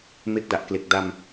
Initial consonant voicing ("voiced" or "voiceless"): voiced